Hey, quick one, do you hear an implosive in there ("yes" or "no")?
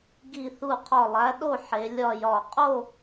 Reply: yes